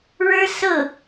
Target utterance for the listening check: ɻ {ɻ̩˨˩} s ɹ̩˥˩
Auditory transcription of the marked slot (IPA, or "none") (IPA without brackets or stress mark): ɻ̩˥